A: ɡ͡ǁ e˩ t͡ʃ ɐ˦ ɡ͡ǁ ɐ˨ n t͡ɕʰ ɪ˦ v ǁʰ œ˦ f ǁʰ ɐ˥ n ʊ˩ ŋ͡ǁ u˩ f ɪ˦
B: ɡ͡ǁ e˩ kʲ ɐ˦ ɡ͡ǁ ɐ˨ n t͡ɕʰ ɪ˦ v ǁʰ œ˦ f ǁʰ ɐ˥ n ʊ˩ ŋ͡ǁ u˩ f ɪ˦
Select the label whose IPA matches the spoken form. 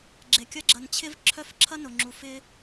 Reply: B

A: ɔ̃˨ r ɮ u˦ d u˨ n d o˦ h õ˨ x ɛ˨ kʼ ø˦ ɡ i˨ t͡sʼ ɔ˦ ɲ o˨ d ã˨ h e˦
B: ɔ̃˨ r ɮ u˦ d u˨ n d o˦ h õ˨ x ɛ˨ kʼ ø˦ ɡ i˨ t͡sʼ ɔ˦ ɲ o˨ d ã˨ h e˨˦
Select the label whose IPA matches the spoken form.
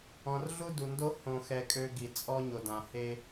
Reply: A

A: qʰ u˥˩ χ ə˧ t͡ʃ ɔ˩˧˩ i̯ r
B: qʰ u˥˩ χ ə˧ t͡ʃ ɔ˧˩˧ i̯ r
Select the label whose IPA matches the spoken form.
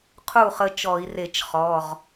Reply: B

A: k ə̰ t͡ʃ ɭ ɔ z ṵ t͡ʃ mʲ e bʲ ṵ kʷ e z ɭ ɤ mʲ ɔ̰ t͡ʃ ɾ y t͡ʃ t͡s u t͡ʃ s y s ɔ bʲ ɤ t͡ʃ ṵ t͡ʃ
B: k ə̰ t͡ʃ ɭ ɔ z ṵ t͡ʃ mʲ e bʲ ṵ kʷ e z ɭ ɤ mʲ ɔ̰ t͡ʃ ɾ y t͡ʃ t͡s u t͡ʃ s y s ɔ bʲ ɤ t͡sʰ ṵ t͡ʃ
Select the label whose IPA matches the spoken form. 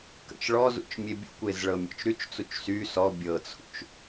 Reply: B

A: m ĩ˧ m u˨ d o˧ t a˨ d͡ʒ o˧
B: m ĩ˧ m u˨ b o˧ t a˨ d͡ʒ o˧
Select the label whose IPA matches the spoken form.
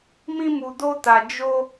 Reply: A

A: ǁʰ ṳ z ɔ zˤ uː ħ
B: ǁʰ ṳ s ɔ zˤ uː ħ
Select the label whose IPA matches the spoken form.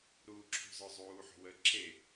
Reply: A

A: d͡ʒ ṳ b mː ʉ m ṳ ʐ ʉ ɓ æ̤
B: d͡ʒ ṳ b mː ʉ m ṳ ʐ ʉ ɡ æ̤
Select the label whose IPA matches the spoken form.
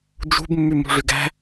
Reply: B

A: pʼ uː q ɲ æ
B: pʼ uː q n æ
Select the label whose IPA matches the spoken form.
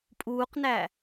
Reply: B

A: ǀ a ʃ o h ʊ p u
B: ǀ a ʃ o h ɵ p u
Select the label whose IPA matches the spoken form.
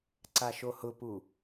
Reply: A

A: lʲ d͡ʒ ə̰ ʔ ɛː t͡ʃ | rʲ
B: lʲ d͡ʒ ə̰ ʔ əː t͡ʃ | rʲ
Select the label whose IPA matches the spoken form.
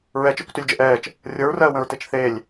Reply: A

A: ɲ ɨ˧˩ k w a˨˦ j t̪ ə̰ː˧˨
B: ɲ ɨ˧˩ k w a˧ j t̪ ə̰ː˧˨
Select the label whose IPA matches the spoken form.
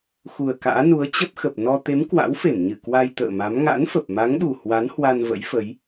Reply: B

